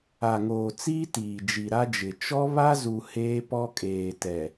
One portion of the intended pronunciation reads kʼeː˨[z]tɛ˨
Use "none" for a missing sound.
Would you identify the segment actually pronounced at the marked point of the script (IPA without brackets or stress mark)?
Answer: none